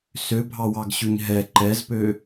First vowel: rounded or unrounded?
rounded